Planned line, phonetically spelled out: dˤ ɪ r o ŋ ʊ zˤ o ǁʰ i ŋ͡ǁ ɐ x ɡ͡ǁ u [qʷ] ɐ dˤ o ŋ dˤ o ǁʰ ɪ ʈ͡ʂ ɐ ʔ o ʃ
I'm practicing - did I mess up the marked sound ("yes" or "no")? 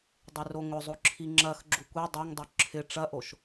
yes